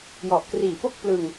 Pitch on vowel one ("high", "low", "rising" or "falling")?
low